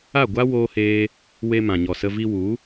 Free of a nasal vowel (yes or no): no